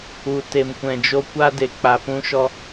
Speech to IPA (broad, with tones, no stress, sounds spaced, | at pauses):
u˨ t e˨ m kʷ ɛ̃˨ d͡ʒ o˧ kʷ a˦ d e˨ k͡p a˨ p ũ˦ ʃ ɔ˦